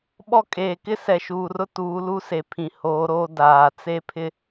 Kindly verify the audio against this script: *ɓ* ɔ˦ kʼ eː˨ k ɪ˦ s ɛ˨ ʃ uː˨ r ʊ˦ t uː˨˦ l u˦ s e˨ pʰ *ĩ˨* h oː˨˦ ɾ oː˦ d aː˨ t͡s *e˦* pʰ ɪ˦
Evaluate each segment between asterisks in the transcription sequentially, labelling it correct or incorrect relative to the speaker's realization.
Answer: correct, correct, correct

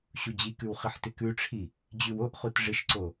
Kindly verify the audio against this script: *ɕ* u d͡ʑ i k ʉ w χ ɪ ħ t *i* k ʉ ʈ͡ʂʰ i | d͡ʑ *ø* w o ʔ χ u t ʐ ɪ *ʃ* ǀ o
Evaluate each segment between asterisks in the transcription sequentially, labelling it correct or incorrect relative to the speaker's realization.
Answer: correct, incorrect: ɪ, incorrect: ʉ, correct

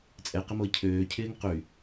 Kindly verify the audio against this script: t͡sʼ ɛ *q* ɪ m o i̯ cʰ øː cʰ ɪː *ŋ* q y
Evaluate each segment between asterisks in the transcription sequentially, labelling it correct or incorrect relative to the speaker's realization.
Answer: correct, correct

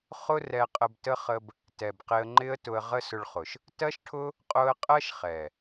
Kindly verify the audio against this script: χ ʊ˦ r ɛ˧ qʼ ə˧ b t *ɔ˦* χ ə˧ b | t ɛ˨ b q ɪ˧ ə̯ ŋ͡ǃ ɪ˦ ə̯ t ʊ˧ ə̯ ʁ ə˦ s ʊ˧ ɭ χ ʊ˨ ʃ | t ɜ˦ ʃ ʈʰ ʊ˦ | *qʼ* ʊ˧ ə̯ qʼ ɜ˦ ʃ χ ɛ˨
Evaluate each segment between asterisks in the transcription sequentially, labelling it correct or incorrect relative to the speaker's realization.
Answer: incorrect: ə˦, correct

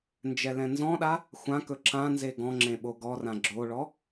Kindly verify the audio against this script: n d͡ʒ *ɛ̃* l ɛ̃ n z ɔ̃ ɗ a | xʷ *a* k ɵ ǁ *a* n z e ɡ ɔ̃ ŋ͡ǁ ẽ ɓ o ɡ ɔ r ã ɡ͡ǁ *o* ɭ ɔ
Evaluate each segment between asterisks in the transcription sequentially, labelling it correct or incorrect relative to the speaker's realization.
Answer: incorrect: ɛ, incorrect: ã, incorrect: ã, correct

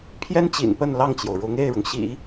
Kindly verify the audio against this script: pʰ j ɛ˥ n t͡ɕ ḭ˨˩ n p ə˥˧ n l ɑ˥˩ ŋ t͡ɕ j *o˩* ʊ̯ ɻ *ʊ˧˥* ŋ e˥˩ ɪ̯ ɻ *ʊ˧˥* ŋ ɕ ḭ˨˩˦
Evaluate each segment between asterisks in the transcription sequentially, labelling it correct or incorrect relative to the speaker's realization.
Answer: correct, correct, incorrect: ʊ˩

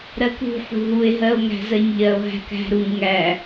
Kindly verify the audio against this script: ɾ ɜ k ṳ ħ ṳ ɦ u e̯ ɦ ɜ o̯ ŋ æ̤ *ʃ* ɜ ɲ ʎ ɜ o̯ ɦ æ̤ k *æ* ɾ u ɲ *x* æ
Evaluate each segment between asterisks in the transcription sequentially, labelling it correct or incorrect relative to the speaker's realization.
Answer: incorrect: z, incorrect: æ̤, incorrect: ŋ

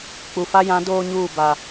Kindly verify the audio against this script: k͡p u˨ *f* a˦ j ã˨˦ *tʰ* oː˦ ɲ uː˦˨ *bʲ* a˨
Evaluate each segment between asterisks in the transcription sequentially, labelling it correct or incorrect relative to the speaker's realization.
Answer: correct, incorrect: d, incorrect: b

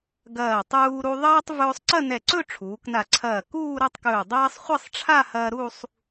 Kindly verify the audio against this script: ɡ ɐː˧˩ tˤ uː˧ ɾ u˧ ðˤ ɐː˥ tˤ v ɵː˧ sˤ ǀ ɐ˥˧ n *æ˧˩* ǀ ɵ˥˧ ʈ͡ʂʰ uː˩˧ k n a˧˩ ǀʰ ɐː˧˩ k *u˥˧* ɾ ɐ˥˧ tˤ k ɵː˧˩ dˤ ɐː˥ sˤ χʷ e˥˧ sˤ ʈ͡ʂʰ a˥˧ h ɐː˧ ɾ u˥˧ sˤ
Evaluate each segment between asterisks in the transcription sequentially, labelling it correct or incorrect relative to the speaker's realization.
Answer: incorrect: ɛ˧˩, incorrect: uː˥˧

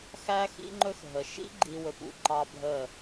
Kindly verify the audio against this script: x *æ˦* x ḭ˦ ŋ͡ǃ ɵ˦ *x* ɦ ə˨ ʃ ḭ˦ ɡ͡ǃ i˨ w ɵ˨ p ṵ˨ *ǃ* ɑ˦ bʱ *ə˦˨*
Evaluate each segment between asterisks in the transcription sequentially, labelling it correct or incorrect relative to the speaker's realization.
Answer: correct, correct, correct, correct

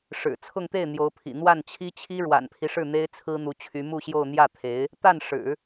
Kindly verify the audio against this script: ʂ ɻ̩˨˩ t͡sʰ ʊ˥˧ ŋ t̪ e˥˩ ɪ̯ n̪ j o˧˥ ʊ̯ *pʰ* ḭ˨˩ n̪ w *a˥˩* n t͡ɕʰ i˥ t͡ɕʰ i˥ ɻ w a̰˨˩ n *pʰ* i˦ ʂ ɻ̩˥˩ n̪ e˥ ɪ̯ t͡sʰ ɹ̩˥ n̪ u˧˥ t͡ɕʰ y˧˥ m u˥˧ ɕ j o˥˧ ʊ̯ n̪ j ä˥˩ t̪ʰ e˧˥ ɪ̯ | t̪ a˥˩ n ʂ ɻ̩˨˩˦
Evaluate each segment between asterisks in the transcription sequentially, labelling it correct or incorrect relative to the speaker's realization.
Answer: correct, correct, correct

